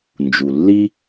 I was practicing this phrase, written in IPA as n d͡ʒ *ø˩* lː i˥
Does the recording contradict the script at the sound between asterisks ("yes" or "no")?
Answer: yes